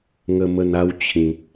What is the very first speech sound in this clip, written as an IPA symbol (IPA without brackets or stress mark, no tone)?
ŋ